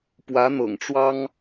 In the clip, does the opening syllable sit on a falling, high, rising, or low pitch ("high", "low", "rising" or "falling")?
rising